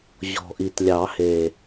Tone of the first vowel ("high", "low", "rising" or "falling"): low